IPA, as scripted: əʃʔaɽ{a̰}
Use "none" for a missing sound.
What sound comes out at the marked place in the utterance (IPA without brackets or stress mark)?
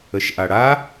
a